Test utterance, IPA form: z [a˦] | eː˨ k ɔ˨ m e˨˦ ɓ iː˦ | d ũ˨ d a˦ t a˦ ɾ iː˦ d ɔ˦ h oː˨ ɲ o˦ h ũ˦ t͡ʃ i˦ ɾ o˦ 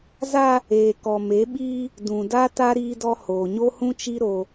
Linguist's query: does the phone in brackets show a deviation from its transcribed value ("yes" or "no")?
no